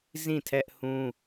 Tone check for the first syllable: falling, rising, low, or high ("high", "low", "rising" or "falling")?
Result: falling